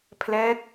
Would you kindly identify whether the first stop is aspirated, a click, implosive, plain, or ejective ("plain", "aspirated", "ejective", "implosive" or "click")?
aspirated